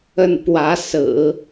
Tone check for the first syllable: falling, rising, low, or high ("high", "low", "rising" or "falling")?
falling